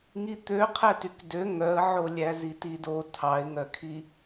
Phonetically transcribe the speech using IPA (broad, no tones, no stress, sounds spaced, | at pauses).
ŋ i t̪ ø qʰ ɛ t y k d ø ŋ œ ə̯ ʕ o lʲ æ z i t i d o tʰ ɑ ɪ̯ ŋ œ kʰ i